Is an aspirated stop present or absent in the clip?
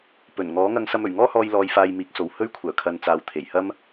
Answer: present